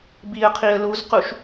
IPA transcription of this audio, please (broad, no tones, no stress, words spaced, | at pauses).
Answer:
biə̯qʰiə̯ luzquʃ